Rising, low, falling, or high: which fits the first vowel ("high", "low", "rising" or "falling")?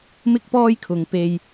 high